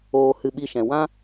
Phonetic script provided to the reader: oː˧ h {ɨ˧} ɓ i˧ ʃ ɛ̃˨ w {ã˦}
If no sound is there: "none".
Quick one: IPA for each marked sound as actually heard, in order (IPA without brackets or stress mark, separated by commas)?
ɨ˧, ã˦